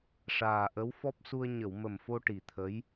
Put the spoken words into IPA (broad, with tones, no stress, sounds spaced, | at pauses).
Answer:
ʂ aː˨˩ ʔ ə˧˥ w f ɔ˦˥ p̚ s u˧ ə̯ ɲ ə˨˩˨ w m ə˨˩ m f o˧ ʈ i˨˩ t̪ʰ ə˧˥ j